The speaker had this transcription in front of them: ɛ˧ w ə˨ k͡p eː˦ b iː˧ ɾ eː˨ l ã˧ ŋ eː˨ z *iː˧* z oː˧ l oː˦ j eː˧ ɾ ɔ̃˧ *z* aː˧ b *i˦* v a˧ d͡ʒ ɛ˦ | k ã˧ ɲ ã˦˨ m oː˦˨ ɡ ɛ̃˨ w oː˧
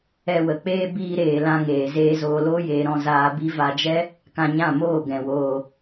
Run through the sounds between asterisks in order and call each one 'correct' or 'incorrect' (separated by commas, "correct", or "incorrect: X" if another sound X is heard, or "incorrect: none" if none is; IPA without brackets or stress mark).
incorrect: eː˧, correct, correct